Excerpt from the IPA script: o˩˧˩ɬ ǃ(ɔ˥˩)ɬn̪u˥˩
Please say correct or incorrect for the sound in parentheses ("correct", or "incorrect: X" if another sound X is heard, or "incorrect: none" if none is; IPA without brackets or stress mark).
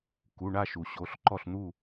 correct